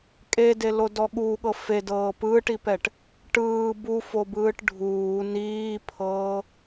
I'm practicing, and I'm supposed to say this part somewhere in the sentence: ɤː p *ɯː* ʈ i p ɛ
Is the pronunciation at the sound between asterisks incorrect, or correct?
correct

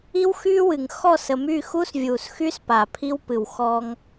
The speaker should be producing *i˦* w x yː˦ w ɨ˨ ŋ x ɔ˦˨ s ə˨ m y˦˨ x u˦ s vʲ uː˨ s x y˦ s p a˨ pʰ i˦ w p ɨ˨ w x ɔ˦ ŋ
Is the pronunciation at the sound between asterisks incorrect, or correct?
correct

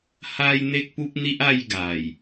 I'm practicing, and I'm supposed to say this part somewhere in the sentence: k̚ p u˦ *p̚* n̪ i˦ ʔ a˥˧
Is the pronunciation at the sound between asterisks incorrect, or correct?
correct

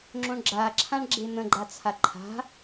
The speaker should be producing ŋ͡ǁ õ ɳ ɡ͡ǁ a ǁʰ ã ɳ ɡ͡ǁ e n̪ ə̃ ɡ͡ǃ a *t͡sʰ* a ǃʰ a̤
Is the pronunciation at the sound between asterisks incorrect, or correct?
correct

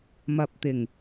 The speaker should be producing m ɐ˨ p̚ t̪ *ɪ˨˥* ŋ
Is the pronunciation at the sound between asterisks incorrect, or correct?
incorrect: ɪ˨˩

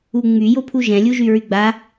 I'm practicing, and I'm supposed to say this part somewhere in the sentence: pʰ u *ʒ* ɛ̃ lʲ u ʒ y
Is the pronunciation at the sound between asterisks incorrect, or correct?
correct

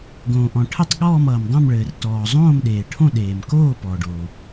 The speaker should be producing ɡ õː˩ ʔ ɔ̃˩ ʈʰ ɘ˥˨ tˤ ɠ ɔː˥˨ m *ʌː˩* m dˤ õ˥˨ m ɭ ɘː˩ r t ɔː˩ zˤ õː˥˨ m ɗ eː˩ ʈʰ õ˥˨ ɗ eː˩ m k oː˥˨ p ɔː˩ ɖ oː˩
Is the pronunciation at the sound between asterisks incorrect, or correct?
correct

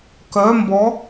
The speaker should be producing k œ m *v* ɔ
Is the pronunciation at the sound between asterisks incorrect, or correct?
incorrect: b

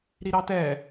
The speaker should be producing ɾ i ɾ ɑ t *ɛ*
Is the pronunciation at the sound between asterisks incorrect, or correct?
correct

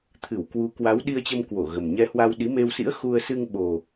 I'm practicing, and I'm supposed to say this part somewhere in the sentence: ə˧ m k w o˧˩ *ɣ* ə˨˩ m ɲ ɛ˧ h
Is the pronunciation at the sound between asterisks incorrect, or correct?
correct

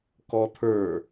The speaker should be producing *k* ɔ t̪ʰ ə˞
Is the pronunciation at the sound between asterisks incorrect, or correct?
correct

